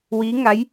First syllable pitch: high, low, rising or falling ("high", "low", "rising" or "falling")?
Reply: rising